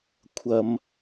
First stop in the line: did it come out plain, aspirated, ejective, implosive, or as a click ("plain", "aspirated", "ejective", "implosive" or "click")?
aspirated